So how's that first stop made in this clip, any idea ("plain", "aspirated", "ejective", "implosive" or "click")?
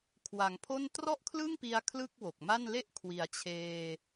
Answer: aspirated